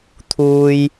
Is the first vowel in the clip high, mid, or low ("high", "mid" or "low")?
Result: high